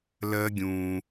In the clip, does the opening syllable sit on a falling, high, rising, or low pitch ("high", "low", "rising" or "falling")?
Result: high